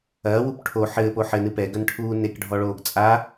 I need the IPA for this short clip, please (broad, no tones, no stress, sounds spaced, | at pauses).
ɐː w u p ʈʰ o ħ ɘː p o ħ ɘ n ɨ p ɛ ɡ ɐ n ʈʰ uː n e k ɖʱ ɔ ɭ oː ɡ t͡sʼ a